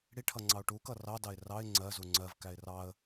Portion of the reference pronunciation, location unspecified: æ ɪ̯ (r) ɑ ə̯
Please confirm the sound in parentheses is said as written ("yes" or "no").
yes